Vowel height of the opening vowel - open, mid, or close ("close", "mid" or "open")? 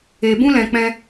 mid